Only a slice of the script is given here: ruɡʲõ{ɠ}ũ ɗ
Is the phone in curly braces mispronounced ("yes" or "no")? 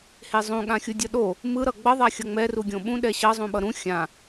yes